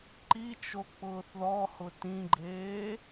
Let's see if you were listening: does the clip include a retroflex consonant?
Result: no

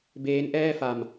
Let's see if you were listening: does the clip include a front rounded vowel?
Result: no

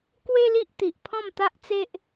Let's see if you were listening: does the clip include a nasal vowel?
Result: yes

